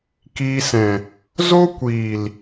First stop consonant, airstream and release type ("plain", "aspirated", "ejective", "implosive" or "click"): plain